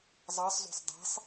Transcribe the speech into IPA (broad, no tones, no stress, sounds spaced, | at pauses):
zˤ ɑ sˤ z o̤ sˤ dˤ e̤ sˤ